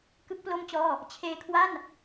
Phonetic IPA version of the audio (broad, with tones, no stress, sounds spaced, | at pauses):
k ɯ˦˥ k̚ p l o˥˩ m t͡ɕ ɔː˥˩ | t͡ɕʰ eː˧ kʰ w a˥˩ n